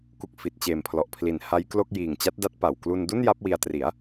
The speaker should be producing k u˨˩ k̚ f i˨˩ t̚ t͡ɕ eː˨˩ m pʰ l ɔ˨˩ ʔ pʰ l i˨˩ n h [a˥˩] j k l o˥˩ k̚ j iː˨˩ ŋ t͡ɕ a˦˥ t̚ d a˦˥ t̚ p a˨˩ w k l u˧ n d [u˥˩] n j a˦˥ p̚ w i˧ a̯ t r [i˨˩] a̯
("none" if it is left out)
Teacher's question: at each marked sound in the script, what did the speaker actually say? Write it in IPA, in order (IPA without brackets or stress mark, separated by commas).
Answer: a˦˥, u˥˩, i˩˦